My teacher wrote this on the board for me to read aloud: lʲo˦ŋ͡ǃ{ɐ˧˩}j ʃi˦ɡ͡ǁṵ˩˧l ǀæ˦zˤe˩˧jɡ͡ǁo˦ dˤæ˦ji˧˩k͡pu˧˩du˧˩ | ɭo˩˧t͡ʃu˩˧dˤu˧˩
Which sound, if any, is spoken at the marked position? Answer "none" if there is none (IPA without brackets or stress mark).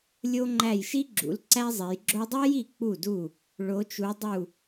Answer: æ˧˩